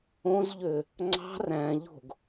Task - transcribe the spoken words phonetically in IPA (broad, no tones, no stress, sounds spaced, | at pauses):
õ z ʎ ø | ŋ͡ǀ ɑ̤ r æ̃ ʎ o̤ ɡ